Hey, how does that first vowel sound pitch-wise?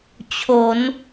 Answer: rising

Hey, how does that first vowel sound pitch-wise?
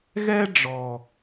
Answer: high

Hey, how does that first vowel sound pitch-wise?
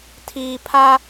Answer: low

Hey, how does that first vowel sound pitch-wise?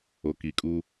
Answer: low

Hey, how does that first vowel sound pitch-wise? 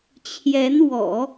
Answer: rising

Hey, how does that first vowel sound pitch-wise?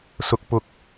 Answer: low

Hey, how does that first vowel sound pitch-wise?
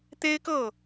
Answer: high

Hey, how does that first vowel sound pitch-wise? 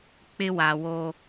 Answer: high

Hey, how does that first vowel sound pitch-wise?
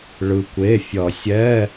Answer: low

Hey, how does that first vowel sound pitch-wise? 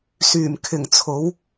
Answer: low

